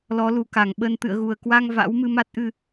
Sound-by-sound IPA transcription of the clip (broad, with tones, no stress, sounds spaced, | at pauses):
l ɔ˨˦ l u˨˩ k a˧˩ ŋ ɓ ə˧ n t̪ ɨ̰˧˨ ə̯ ɣ u˨˩ ə̯ k w a˧ ŋ v a̰˧˥ w m ɨ˧ m a˦˥ t̚ ʔ ɨ˧